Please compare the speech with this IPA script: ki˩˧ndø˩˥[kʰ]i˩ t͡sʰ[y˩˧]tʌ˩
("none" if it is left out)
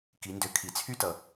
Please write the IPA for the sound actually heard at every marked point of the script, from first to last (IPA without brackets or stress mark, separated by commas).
kʰ, y˦